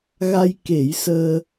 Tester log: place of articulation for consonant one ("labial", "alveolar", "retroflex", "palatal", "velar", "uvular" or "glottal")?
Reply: velar